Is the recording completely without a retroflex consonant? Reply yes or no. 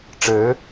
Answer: no